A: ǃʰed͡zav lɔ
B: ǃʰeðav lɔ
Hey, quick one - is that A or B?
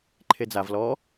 A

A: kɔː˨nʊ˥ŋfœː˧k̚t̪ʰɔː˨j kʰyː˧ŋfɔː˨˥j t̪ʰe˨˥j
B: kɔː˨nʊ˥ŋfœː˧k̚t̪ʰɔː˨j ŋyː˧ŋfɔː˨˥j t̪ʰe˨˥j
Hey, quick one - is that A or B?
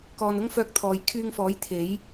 A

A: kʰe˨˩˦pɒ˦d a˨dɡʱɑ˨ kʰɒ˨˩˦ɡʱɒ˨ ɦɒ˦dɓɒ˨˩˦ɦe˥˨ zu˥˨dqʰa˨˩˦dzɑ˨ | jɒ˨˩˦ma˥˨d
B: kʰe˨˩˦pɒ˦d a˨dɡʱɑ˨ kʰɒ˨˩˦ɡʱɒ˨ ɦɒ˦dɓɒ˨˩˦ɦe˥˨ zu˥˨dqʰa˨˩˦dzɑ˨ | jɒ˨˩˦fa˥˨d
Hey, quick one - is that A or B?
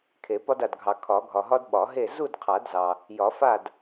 B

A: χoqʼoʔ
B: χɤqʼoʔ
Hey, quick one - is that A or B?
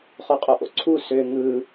A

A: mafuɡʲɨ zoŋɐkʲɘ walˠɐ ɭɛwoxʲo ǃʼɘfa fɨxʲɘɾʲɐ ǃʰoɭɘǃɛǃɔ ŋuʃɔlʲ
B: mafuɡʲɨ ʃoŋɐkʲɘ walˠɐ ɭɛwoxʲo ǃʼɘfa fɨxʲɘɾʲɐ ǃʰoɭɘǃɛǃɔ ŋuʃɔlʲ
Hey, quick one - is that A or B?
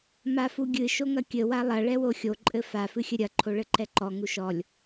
B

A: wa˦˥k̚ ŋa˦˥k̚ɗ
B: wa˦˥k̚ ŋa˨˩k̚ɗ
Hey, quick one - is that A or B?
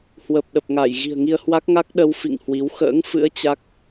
A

